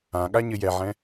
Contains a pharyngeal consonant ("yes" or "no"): yes